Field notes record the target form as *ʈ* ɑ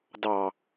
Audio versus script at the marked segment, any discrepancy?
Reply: yes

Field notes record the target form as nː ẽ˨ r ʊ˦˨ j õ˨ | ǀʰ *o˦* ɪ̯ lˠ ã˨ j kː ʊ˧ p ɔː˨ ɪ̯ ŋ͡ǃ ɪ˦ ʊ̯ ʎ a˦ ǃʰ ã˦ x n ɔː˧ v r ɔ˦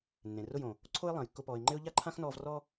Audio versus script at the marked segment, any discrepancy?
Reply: no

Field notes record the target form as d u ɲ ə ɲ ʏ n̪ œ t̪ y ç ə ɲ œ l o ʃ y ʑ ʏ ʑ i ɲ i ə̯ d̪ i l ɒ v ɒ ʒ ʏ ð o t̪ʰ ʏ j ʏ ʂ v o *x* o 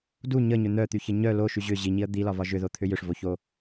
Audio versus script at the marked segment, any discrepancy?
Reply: yes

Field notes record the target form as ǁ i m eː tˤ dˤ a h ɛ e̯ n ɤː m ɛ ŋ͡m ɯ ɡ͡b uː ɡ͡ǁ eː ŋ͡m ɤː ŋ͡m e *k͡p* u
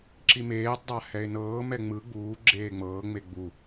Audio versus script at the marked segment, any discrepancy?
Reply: yes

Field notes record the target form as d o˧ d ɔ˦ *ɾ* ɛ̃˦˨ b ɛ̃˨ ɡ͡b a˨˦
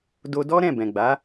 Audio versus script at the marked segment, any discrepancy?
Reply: no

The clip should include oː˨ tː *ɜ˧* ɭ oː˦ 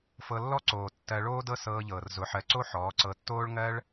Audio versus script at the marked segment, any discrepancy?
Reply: no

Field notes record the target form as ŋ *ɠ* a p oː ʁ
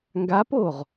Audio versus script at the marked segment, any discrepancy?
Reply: yes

